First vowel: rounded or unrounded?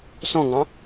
rounded